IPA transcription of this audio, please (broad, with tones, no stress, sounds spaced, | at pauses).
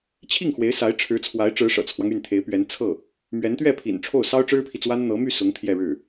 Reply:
t͡ɕʰ i˥˩ ŋ x w e˧˥ ɪ̯ s a˧˥ ɪ̯ ʈ͡ʂʰ ɻ̩˧˥ t͡sʰ w a˧˥ ɪ̯ ʈ͡ʂ ɻ̩˧˥ ʂ ɤ̰˨˩ t͡sʰ w ɑ˦ ŋ y˥˩ n t̪ʰ e˧˥ ɪ̯ p ɥ ɛ˧˥ n t͡sʰ ɤ˥˩ | m ɥ ɛ˧˥ n t̪ ɥ ɛ˥˩ pʰ ḭ˨˩ n ʈ͡ʂʰ o˥˩ ʊ̯ s ɑ˥ ʊ̯ ʈ͡ʂ ɻ̩˥ pʰ i˨ t͡s w a˥ n n̪ ɤ˧˥ m y˥˩ s ʊ˧˥ ŋ t̪ʰ j ɛ˥˧ ɻ ɻ̩˥˩